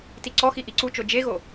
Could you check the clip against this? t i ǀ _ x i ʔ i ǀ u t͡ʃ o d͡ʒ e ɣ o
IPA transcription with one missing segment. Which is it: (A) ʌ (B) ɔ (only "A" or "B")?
B